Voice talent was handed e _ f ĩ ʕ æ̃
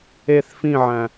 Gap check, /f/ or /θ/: θ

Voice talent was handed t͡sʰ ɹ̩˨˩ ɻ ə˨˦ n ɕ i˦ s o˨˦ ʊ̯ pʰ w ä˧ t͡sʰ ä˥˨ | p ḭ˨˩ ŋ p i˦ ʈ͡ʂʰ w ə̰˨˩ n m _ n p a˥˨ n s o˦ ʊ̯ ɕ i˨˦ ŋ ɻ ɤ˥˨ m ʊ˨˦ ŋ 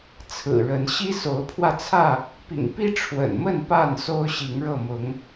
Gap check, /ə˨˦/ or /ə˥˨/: ə˥˨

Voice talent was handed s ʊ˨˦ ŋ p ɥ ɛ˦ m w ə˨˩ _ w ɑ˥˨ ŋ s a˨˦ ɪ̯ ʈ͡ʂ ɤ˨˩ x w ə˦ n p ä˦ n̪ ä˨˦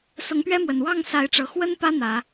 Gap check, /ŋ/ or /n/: n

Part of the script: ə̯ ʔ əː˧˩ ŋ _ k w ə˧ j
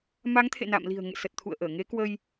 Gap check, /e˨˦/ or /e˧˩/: e˨˦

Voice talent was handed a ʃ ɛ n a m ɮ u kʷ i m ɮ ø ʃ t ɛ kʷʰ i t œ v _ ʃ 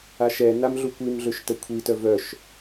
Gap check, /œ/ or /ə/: œ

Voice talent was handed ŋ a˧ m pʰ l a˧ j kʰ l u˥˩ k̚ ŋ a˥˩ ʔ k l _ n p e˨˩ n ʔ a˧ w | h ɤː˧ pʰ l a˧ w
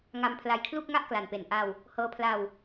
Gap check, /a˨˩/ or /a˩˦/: a˨˩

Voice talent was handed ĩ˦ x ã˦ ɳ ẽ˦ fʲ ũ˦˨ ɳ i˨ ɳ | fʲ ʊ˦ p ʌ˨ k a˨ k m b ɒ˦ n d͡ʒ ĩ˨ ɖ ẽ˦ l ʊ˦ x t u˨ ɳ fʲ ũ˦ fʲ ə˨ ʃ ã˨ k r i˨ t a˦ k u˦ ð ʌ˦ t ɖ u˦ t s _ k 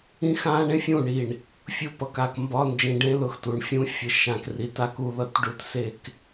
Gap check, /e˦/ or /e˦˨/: e˦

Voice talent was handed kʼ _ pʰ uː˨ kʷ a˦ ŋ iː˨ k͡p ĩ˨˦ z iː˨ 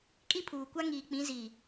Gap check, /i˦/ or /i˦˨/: i˦˨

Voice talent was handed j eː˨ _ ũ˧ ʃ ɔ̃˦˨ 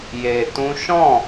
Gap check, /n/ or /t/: t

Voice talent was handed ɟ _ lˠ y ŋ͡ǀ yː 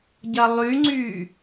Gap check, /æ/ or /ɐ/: ɐ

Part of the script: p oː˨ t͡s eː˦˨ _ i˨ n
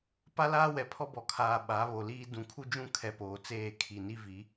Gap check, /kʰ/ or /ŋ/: kʰ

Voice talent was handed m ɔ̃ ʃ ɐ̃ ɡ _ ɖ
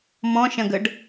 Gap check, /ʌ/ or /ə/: ə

